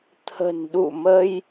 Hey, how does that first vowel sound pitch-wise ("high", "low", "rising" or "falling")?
low